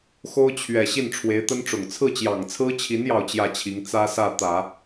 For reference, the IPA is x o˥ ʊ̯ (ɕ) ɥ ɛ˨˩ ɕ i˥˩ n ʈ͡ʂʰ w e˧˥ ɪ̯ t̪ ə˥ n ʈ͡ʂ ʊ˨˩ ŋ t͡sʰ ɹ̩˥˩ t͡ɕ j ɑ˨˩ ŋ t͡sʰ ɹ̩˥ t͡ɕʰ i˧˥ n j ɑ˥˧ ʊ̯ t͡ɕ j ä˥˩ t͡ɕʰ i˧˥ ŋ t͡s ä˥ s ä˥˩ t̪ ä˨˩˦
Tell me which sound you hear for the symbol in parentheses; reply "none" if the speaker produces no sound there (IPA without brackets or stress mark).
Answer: t͡ɕʰ